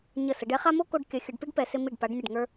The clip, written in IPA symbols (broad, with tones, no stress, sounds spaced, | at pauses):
ɲ ə˧˩ s ə˩˧ ɖ ɛ˥ χ a˥ m o˥ k o˧ ɖ kʲ ʌ˩˧ xʲ ɤ˩˧ ɖ p i˥ ɖ p ɛ˩˧ s ɪ˧ m i˧˩ ɖ p a˩˧ ɖ nʲ ʌ˧˩ ɖ ŋ ə˞˧